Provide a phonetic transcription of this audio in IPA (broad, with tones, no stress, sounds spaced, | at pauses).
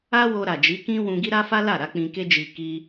a˦ w o˧ ɾ a˨ d͡ʒ i˨˦ k ĩ˦ w ũ˧ ɡ i˦ ɾ a˦ f a˦ l a˦˨ ɾ a˨˦ k͡p ĩ˧ k e˦ d͡ʒ i˧ k i˧